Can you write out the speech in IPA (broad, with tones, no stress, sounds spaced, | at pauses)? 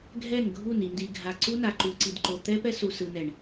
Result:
ɡʱ ɛ˦˨ n ɡʱ u˦˨ n i˨ n d i˨ ɡʱ a˨ ǀ u˦ n a˨ ǃ u˨ ǀ i˨ d ǃ o˨ t̪ ɛ˦ p ɛ˦ s u˨ s ɯ˨ n ɛ˨ ɳ